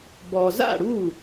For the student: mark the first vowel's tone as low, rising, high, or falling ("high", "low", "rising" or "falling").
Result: low